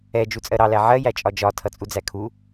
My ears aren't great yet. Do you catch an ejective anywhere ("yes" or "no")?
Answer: yes